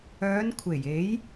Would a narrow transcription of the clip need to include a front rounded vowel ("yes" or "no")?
yes